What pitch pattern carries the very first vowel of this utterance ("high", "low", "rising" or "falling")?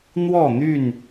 falling